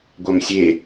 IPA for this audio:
ɡʷ a m sʲ e

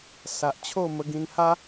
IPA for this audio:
s a˨ ʔ t͡ɕʰ o˥˧ m ə˧ ɡ ĩ˧ n h a˦

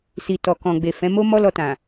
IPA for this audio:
s i˨ t ɔ˨ k ɔ̃˨ ɡ͡b e˨ f ɛ̃˨˦ m o˦ m ɔ˦ l ɔ˧ t ã˨

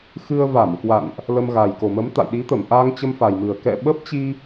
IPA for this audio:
x ɨ˧ ə̯ v a˧˩ m k w a̰˧˨ n ʔ | l ə˧ m ɣ a˨˩ j k o˨˩ m ə˨˦ m t̪ a̰˧˨ j ɗ i˨˦ t̪ ə˧˩ m ʔ a˧ ŋ t͡ɕ ə˧ m f a˨˩ j m ɨ˨˩ ə̯ k ɛ̰˧˨ ɓ ə˦˥ p̚ t͡ɕ i˧

